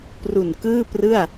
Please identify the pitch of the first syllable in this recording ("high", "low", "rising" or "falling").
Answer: low